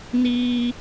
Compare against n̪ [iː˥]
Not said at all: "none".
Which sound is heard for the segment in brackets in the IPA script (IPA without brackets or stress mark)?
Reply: iː˥